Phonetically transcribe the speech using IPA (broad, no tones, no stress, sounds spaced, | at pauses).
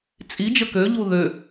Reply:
t͡sʼ i d͡ʒ ə k ø ʎ u ð ø